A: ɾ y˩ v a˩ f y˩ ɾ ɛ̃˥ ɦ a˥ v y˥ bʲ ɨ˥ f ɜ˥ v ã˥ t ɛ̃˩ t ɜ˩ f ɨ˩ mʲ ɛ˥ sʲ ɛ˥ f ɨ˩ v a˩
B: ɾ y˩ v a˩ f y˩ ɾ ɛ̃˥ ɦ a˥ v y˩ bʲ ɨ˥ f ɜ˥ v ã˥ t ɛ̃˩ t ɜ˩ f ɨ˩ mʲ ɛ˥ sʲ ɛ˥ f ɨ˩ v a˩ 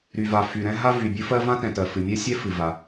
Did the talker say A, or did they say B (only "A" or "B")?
B